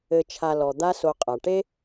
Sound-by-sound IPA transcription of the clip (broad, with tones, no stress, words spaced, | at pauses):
ɘ˨t͡ʃʰa˨ lɔ˩ d̪a˦so˨qʼa˩ ʈe˥